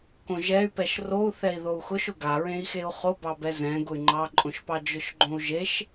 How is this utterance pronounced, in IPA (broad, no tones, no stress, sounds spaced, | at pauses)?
k õ ʒ ɛ y̯ p ɛ ʃ r o u̯ θ ɛ i̯ ð o u̯ x ʊ ʃ ʊ ɡ a ɹ ẽ i̯ x e u̯ χ o b ɑ b ɛ z ɛ̃ ɡ ʊ y̯ ŋ͡ǃ ɑ ǃʼ õ ʃ p ɑ d͡ʒ ʊ ʃ ɡ͡ǃ õ u̯ ʒ e ʃ